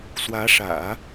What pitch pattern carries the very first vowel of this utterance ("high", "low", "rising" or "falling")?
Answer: rising